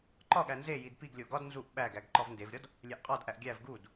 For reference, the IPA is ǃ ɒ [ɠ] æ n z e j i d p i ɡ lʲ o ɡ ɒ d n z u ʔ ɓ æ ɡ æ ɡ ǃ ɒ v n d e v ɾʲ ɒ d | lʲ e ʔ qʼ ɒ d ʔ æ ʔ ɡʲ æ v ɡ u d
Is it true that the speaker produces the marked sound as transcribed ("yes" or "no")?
yes